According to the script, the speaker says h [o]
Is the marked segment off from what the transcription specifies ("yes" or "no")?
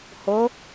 no